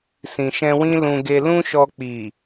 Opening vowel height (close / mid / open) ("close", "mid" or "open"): close